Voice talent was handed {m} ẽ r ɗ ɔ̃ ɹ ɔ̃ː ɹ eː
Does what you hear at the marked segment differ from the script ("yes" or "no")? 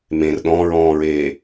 no